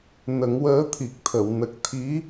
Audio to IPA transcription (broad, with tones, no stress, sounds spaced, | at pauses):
n ə˨˩˦ ŋ w əː˧˥ t̪ʰ i˨˩ k̚ t̪ʰ ə˨˩˨ w n ə˨˩ k̚ t̪ʰ i˧˥